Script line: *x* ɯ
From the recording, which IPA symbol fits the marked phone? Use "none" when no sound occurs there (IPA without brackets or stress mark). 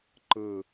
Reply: ǃ